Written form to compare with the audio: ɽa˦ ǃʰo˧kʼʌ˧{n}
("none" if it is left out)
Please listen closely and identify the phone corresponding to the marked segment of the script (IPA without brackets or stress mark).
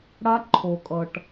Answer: ʈ